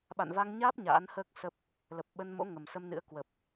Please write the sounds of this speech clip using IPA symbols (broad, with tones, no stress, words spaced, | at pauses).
ɓa̰˧˨n va˧ŋɲaː˦˥p̚ ɲa̰ː˧˥nhəː˦˥k̚sə˦˥p̚ | lə˨˩p̚ɓə˧nmo̰˧˥ ŋə˨˩msə˧mnɨ̰˧˥ə̯ kwə˨˩p̚